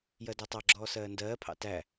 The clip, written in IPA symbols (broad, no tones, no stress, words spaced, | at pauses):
jɜdætˤɑɡ͡ǁɔː sɜːndɜːpʰɑ̰ tæ